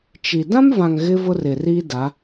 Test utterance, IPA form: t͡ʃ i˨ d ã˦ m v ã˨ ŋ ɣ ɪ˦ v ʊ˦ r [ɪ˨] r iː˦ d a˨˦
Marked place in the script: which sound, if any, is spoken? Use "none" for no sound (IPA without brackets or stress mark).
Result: ɪ˨